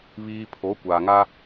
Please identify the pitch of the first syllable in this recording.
high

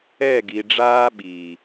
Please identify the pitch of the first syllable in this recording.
falling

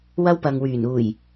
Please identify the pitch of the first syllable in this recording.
high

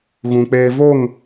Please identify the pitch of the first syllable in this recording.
low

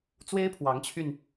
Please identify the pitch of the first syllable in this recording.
high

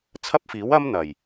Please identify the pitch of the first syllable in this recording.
high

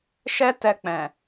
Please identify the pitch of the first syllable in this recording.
high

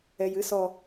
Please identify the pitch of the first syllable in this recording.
low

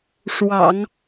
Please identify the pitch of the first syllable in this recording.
low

